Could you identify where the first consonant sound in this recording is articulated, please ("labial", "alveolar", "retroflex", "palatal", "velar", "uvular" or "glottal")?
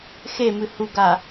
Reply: velar